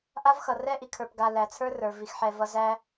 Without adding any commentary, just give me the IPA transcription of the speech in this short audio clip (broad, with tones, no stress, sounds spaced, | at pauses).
ʔ a˥ v x ʌ˩ r ɛ˥ ʔ i˩ kʰ ə˞˨ p ɡ a˨ l æ˩ t͡sʰ ə˞˥ r ə˞˩ v i˨ x ħ ɛ˨ v ʌ˦ z æ˦